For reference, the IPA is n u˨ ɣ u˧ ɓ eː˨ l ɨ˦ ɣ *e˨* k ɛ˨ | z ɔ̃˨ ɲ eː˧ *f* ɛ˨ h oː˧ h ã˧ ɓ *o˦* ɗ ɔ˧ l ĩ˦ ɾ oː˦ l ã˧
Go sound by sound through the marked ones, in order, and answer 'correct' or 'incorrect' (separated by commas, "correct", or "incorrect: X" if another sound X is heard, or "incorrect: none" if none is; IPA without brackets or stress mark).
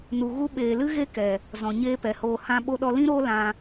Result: incorrect: e˦, incorrect: p, incorrect: o˧